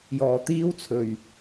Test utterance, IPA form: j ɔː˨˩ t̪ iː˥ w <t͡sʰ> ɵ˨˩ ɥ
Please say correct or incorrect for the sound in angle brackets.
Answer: correct